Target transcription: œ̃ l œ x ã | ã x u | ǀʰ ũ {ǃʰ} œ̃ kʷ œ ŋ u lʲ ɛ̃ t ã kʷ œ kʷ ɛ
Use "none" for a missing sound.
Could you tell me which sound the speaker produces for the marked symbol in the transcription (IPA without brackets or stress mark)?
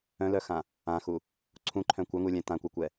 ǃʰ